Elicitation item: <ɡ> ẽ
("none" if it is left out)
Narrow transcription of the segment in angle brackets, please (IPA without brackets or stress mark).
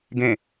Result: ɡ